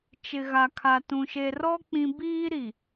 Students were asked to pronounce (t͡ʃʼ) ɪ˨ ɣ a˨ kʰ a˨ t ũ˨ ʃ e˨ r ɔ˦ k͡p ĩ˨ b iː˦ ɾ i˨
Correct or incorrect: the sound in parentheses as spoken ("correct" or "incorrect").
incorrect